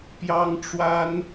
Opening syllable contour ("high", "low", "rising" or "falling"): high